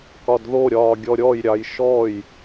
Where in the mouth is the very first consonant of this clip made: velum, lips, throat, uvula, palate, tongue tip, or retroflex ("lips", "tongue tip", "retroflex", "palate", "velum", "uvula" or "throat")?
velum